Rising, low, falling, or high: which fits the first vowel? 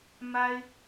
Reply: high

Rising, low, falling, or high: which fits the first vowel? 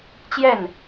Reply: falling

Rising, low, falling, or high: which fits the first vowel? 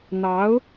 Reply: rising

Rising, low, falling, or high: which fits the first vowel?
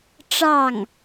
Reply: falling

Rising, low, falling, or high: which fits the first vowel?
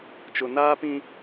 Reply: low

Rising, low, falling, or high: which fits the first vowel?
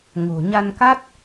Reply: low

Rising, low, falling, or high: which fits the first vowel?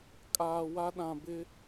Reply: low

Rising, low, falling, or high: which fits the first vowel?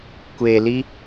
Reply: low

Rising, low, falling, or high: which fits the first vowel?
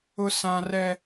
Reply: high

